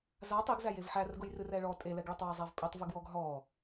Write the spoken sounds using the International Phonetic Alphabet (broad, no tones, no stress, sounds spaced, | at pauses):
z a tˤ i ɡ z æ j e v ħ æ r ɡ ʊ j r ɨ r ɛ ɭ ɔ tʼ e l ɛ ɡ ɭ ɘ tˤ w a zˤ a v pʼ i tˤ v ɨ ɡ w ɔ ɡ ɦ ɔ